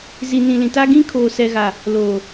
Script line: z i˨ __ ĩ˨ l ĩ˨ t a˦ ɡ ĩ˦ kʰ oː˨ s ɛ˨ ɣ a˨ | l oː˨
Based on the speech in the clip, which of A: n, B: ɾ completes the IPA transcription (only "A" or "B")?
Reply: A